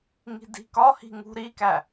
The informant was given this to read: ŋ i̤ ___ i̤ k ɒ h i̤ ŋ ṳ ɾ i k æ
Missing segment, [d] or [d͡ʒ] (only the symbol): d